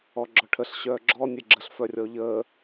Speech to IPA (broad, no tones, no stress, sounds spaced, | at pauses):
ɔ ɡ͡ǁ ɔ ʈʰ ə ɬ ɕ œː ɡ͡ǁ ɔ nʲ e ɡ͡ǁ ə ɬ f œ rʲ ɔ ʎ əː